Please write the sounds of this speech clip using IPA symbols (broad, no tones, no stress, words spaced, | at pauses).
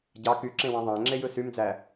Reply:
ɟɑ kyǁẽwɑ̃ ðˤæ̃ŋ͡ǁejɯ symd͡zæ